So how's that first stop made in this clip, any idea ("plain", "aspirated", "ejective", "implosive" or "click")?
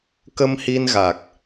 plain